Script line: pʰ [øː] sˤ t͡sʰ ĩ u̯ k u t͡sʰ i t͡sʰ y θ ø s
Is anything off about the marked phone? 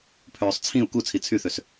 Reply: no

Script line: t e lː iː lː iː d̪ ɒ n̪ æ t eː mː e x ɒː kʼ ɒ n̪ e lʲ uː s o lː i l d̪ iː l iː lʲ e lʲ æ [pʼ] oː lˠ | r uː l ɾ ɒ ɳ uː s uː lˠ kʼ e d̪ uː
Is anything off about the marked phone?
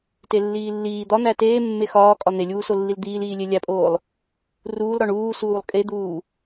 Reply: no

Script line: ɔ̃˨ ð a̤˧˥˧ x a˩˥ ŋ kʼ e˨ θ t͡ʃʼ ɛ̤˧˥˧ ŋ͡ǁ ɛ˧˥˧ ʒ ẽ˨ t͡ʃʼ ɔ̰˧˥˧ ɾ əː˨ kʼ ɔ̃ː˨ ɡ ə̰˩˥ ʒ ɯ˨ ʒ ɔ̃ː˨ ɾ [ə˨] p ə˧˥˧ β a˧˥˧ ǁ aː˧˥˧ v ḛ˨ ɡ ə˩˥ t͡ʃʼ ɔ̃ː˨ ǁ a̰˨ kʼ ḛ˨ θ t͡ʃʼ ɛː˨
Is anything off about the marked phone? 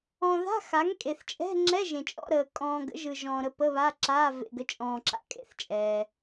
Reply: yes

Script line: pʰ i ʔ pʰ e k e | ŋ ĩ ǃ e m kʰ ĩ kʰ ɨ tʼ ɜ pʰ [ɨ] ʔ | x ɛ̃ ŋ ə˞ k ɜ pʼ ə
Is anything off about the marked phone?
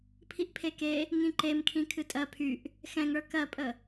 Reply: yes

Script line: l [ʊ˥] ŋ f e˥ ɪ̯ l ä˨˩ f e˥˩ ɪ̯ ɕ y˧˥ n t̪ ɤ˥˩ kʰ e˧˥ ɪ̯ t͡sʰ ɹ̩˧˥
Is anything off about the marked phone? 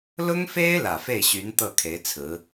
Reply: no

